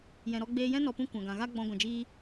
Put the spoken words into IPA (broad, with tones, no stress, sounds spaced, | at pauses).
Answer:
j ɛ̃˨ ɾ ɔ˧ ɡ͡b eː˧ j ɛ̃˦ n ɔ˨ p ũ˧ kʷ ã˨ ɡ ã˨ ɣ a˦ ɡ͡b ɔ̃˧ ɡʷ ã˨ d͡ʒ iː˦